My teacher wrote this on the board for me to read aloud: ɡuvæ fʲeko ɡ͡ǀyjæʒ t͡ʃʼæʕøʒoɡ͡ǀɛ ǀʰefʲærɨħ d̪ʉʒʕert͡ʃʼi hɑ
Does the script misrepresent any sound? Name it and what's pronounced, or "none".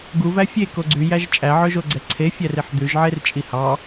ɨ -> i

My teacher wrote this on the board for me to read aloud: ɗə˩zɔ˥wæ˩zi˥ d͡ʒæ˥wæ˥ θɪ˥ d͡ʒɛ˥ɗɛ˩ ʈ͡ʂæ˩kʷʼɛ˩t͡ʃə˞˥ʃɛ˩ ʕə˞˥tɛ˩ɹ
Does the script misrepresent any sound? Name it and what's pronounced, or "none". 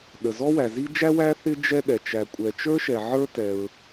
ʈ͡ʂ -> t͡ʃ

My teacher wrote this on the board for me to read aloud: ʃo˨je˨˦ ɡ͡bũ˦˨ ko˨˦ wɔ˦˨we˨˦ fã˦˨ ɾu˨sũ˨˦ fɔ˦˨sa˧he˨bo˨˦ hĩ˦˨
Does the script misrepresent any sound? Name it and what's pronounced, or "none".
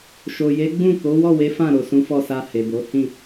u˨ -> o˨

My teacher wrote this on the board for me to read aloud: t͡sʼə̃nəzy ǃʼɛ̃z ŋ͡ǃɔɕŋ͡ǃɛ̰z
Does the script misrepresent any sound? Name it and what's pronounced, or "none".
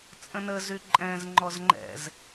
ɕ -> z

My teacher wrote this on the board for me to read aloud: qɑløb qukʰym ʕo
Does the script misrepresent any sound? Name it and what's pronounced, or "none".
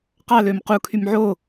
b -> m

